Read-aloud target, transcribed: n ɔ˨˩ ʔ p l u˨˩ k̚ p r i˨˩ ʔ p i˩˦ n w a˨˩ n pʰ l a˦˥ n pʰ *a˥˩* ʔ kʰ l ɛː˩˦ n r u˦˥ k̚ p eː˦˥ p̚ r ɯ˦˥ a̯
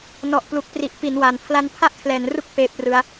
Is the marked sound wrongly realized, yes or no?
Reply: no